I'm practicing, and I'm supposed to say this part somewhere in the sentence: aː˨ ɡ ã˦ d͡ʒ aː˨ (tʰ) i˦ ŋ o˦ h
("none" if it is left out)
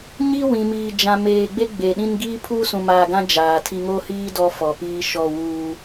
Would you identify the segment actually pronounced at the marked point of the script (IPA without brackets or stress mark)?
tʰ